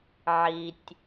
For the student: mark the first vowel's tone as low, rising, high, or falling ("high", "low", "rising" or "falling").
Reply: low